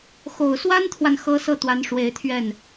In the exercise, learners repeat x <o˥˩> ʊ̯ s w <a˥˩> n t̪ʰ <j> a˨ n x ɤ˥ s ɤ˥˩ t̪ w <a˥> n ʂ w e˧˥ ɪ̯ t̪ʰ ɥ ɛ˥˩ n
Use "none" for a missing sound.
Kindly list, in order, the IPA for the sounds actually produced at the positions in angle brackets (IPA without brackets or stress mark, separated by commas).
o˨˩, a˥, w, a˧˥